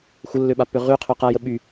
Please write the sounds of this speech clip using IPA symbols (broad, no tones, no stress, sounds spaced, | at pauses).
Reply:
xʷ ə lː ø ɓ a pː ø ʁ y qʰ ø q a j ə ɓ y